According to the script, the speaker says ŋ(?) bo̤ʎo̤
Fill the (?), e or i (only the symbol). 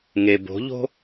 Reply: e